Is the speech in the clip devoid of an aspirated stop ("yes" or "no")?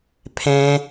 no